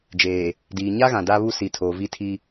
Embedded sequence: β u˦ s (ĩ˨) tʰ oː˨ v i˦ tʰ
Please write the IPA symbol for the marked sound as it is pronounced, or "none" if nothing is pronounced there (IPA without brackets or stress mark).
i˨